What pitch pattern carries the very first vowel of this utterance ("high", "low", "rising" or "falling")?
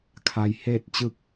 low